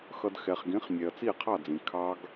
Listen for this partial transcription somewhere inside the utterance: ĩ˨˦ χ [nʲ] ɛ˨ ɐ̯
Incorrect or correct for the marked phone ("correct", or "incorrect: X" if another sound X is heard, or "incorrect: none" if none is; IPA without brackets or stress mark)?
correct